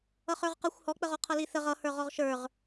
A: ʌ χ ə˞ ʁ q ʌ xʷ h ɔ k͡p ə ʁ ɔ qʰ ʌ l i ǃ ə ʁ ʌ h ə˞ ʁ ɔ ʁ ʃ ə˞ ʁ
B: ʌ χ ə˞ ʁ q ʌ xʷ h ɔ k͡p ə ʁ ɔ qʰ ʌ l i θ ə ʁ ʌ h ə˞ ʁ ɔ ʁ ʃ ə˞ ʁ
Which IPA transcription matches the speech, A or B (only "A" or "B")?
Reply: B